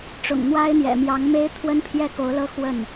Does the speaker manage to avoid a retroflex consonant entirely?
no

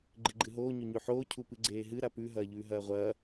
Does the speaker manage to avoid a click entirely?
no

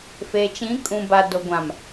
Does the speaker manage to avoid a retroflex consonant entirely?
yes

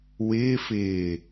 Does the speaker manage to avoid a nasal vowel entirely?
yes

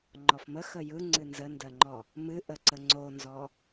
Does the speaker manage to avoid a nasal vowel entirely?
yes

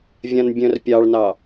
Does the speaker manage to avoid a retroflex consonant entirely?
no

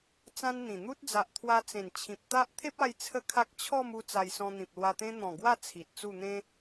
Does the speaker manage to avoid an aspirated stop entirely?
no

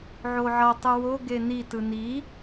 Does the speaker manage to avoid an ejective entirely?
yes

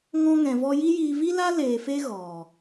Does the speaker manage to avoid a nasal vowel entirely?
no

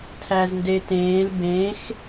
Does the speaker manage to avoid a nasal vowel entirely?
no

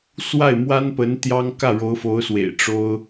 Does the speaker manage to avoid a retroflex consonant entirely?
no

